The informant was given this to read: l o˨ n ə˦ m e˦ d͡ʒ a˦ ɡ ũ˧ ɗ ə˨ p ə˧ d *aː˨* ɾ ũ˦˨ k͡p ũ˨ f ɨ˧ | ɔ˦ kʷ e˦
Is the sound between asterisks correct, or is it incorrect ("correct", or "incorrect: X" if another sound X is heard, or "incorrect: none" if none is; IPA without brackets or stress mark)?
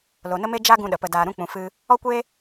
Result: incorrect: aː˧